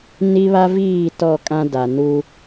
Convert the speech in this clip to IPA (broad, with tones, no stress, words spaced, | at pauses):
ni˦βa˦viː˦˨ tɔ˦˨kʼã˦ da˨nu˦